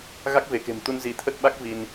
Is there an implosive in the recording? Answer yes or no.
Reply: yes